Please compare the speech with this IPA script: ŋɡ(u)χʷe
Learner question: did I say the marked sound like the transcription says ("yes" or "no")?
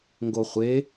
no